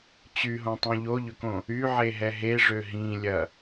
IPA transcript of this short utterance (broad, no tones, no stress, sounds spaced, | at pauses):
t͡ɕ y ɦ õ tˤ ũ ʎ o ʎ ʏ k õ | y ʕ e ɦ ɛ ɦ e ʐ ø ɦ ĩ lʲ ɐ